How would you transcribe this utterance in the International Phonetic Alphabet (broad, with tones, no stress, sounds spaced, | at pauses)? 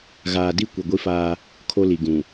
ɣ aː˨ d i˦˨ kʷ i˨ ɡʷ i˦ f aː˦ | kʰ o˦ l i˨ ɡ ũ˨